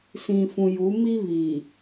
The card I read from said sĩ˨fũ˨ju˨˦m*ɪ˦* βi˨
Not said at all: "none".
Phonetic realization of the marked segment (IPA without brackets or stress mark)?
i˦